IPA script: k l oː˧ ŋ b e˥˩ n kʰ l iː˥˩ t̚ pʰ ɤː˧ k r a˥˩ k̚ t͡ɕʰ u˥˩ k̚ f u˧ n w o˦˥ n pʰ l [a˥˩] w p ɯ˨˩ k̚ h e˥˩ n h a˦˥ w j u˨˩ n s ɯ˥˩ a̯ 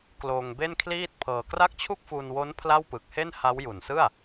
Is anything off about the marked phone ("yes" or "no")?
no